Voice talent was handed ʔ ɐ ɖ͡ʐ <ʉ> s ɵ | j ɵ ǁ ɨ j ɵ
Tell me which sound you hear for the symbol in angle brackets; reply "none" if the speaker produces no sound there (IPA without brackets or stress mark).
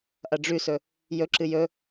ʉ